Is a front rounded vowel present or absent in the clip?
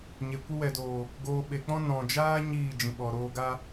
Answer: absent